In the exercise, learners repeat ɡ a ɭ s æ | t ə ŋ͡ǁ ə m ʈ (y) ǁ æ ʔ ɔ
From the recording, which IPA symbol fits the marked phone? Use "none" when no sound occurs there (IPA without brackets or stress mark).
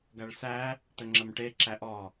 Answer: e